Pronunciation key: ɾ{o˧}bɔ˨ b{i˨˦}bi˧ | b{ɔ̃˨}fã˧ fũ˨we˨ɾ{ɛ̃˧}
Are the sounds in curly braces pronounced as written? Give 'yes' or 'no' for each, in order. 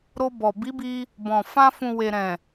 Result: yes, yes, yes, no

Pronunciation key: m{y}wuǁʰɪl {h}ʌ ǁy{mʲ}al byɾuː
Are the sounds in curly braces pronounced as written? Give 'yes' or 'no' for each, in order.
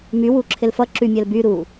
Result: yes, no, yes

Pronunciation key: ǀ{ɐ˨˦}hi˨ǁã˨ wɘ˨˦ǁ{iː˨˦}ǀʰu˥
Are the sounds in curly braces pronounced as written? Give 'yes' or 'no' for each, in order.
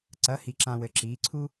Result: yes, yes

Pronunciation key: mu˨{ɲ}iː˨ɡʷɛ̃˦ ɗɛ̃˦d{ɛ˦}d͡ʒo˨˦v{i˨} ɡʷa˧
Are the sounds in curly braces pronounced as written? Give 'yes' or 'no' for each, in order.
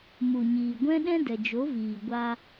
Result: yes, no, no

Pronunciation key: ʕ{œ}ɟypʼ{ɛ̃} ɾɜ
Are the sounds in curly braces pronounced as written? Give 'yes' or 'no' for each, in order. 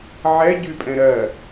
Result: no, yes

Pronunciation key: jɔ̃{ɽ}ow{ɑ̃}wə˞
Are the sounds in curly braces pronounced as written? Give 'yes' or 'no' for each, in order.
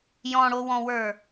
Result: yes, no

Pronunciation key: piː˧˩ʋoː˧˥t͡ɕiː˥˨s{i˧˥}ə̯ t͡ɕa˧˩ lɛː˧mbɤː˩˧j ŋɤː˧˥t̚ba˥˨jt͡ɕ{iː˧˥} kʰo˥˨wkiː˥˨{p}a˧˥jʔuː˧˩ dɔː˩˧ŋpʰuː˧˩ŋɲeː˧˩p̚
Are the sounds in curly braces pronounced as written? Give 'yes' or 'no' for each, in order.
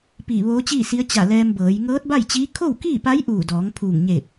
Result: yes, yes, yes

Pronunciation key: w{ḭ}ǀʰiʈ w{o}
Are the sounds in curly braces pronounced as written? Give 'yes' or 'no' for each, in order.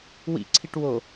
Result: yes, yes

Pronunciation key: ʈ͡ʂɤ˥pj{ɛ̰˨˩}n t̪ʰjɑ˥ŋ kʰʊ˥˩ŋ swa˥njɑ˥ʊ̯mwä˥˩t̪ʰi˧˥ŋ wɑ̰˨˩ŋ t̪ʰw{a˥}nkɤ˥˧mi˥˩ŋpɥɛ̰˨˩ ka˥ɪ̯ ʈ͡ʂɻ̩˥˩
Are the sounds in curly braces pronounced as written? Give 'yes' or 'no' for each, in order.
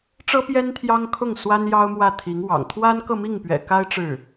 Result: no, yes

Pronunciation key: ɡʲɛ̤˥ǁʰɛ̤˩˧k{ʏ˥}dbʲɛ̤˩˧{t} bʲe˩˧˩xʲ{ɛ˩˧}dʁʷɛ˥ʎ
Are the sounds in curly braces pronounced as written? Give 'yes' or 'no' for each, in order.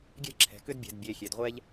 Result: yes, no, no

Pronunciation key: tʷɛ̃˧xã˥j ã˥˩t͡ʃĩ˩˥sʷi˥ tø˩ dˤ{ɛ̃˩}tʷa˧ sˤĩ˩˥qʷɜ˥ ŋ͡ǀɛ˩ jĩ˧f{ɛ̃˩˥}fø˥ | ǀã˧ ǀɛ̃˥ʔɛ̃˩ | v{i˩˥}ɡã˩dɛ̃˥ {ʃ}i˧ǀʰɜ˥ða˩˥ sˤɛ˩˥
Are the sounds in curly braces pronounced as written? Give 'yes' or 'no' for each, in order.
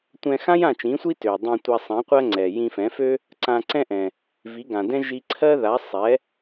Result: no, yes, yes, no

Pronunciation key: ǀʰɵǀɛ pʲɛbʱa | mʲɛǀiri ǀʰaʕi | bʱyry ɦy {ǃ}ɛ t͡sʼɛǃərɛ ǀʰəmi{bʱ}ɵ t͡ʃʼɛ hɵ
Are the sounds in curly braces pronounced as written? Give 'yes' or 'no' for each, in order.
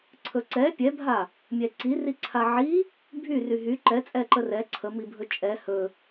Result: yes, yes

